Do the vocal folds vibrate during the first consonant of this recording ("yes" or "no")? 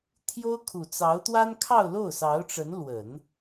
no